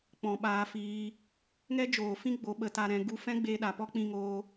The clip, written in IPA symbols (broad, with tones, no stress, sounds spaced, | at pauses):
k͡p ɔ̃˨ ɓ aː˧ f iː˧ | ŋ ɛ˦ d͡ʒ oː˨ f ĩ˦ ɡ͡b o˨˦ ɓ ə˨˦ t a˧ ɾ ɛ̃˧ ɡ u˦ f ɛ̃˦ ɡ͡b eː˧ ɗ a˨ p ɔ˦ k͡p ĩ˦ ŋ oː˦